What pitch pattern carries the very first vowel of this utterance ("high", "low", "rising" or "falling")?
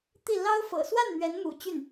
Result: falling